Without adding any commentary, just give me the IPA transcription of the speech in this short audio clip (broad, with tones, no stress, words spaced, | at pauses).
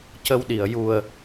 cə˧wɗi˨˩ə̯ ju˨˩ə̯